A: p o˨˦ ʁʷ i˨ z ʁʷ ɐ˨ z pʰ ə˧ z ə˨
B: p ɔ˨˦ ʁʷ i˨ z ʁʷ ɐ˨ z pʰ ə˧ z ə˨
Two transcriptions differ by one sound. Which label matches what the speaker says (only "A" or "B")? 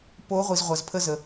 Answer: A